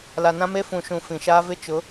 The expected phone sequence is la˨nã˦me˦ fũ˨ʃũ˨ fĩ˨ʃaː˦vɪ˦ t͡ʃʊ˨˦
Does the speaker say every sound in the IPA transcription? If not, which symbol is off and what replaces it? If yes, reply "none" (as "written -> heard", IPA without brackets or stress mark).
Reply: none